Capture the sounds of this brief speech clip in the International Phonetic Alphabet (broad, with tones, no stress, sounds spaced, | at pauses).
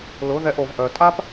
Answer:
l ʊ˨˦ ð ɛ˧ ʔ o˨ v ʔ œ˨ tʼ a˦ p